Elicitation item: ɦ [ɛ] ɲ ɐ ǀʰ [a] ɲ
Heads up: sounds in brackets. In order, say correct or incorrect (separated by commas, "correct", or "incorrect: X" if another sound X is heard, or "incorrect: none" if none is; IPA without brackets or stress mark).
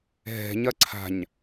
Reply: incorrect: ɛ̤, incorrect: a̤